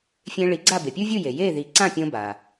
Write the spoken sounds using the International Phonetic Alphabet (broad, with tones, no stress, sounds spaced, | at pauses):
fʲ ẽ˧ ɭ i˩˥ ɡ͡ǀ a˥˩ b e˩ pʲ u˥ vʲ u˥˩ j e˩ j e˥˩ ð i˩˥ ǀ ã˥˩ pʲ õ˧ b a˩